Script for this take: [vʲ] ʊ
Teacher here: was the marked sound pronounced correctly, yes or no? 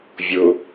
yes